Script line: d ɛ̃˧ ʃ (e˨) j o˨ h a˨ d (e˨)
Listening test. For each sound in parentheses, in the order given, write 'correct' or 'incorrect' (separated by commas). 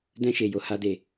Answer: correct, correct